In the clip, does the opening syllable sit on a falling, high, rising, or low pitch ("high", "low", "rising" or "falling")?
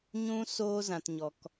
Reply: high